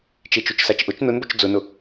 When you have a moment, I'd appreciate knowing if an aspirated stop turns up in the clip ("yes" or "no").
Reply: no